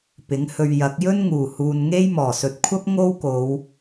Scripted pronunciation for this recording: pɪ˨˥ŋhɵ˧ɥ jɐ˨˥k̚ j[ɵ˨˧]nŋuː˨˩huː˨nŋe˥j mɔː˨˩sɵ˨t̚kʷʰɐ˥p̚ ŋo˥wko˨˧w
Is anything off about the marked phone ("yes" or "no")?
yes